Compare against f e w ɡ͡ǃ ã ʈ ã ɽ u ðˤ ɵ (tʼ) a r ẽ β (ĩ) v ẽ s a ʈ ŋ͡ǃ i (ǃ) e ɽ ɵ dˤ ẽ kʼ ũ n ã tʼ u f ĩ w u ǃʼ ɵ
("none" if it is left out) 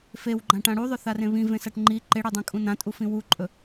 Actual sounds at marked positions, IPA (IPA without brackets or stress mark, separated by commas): θ, ĩ, ǃ